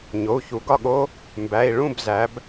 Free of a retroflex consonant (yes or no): no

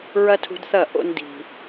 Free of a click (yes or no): yes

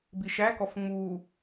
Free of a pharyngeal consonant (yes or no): yes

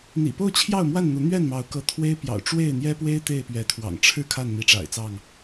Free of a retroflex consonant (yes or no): no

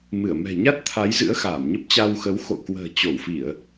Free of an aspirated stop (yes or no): no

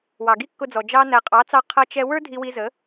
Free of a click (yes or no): yes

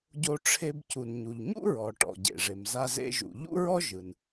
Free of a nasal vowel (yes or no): yes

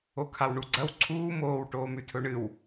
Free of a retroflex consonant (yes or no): no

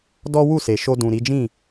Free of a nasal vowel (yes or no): no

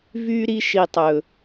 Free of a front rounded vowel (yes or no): no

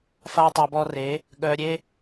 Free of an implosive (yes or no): no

